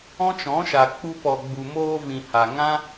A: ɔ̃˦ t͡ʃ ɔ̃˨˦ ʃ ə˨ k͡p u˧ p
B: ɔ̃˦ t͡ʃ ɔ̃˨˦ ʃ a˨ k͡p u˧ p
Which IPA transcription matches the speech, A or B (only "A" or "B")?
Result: B